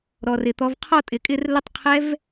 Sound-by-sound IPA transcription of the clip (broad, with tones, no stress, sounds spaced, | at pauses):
ɾ ɔ˩ r ɪ˩ t̪ ɔ˩˧ v qʰ ɔ˥˨ tʼ ɪ˩ kʼ ɪ˥˨ r l ə˦˥ tˤ qʰ ɛ˦˥ v